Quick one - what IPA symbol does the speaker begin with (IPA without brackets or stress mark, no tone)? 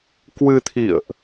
k